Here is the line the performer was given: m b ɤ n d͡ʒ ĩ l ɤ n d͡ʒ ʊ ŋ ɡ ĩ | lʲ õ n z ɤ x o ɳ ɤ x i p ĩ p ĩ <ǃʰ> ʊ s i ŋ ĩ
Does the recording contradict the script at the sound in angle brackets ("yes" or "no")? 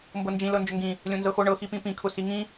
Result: yes